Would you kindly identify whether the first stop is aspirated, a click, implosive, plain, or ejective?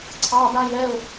click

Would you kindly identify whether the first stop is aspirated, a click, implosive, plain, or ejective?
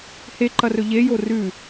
click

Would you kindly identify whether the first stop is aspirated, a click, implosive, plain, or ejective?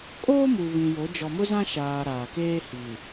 ejective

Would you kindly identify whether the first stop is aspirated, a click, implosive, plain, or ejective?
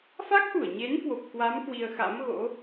plain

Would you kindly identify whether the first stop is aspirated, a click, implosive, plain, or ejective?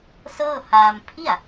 aspirated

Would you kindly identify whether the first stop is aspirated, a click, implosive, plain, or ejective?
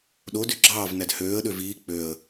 implosive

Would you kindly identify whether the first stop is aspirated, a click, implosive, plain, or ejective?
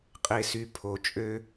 ejective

